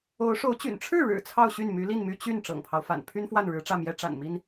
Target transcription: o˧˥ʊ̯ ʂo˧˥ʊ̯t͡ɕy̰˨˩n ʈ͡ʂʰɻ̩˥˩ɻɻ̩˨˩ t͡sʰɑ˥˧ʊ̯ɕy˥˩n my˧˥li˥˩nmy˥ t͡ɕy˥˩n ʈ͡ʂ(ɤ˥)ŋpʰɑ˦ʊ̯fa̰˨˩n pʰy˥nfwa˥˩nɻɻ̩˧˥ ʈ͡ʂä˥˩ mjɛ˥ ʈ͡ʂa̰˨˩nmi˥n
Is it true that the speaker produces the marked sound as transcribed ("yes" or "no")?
no